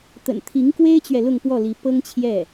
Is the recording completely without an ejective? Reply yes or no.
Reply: yes